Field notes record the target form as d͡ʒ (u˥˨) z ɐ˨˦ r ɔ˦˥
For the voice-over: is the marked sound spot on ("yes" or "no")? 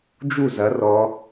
yes